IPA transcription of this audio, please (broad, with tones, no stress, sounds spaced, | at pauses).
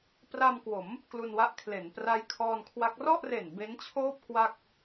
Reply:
p r a˧ m k w o˩˦ m | k l u˧ n w a˦˥ ʔ kʰ l e˩˦ n p r a˦˥ j kʰ ɔː˧ n kʰ w a˦˥ k̚ r ɔ˥˩ ʔ r e˨˩ n b e˦˥ n t͡ɕʰ oː˥˩ p̚ k w a˥˩ k̚